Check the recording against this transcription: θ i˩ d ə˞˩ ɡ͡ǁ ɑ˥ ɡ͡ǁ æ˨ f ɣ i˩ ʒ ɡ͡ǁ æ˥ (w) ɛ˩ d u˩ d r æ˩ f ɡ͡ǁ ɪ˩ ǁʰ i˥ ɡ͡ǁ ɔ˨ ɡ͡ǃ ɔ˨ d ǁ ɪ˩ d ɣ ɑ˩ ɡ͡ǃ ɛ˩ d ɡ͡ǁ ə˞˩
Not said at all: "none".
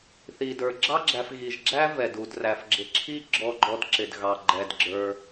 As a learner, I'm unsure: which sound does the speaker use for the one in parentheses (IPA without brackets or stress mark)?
v